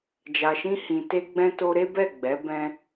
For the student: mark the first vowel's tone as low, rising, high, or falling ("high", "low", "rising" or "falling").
low